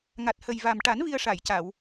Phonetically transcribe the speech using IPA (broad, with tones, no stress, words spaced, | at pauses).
ŋa˨˩t̚hə˨˩jva˨˩mʈa˨˩˦n vi˧ə̯ʂa˨˩˨jca˨˩˨w